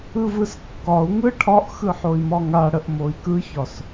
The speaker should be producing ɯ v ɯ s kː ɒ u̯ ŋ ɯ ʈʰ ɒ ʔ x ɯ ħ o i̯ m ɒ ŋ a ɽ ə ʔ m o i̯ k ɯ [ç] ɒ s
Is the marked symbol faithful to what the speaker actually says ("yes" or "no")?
yes